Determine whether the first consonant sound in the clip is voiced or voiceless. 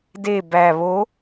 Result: voiced